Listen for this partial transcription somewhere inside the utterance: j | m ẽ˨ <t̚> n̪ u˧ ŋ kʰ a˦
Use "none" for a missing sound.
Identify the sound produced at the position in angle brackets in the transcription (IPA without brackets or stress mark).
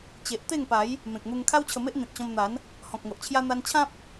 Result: k̚